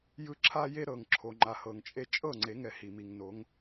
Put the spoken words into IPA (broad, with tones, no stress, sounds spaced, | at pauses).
j ɯ˦ ǁʰ a˦ j e˦ ɾ ɤ˨ ŋ ǁʰ o˨ ŋ͡ǃ a˨ h ɤ˨ ŋ t͡ʃʼ e˦ t͡ʃʼ ɤ˦˨ ŋ͡ǀ e˨˦ ŋ ɛ˨ h i˨ m i˨ ŋ n o˨˦ ŋ